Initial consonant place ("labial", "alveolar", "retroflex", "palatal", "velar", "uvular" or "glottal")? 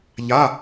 palatal